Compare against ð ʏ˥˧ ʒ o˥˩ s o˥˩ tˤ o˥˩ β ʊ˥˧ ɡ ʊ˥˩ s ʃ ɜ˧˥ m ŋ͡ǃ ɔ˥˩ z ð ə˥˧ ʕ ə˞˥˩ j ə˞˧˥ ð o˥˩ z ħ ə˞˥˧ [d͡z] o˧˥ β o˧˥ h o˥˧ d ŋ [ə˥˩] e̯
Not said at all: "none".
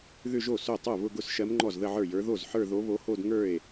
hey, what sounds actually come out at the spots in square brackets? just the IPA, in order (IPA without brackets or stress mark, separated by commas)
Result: ð, ə˞˥˩